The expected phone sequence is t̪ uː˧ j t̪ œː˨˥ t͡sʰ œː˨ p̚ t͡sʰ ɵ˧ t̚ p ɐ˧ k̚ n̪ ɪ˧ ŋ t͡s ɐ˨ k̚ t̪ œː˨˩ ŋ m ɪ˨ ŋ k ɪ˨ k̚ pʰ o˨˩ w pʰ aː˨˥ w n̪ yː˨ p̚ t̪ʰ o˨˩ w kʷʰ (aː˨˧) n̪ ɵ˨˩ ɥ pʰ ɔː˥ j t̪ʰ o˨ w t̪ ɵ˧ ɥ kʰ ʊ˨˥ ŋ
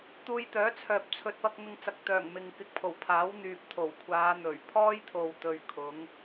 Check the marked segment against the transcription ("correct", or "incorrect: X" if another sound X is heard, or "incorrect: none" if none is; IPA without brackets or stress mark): correct